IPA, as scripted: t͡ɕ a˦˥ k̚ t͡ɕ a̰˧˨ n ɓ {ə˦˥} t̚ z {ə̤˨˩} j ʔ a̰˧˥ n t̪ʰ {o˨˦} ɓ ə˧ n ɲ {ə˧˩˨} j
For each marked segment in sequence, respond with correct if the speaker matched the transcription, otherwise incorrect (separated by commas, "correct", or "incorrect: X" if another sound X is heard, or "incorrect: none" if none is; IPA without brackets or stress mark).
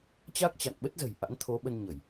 correct, correct, correct, correct